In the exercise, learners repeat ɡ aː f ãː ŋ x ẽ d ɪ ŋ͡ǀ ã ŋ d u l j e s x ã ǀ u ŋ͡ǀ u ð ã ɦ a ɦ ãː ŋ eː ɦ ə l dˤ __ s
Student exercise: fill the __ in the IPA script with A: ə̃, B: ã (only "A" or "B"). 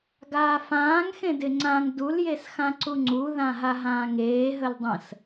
A